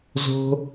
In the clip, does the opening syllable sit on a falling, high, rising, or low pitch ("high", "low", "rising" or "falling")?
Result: high